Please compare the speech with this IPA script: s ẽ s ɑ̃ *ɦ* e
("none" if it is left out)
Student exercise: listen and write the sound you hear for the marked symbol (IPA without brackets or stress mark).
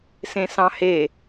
h